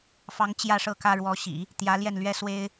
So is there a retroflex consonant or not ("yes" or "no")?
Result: yes